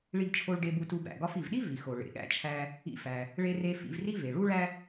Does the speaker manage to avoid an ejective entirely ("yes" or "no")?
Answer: yes